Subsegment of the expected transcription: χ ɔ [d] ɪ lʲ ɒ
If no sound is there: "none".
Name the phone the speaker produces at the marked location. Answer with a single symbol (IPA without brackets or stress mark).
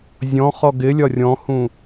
ɡ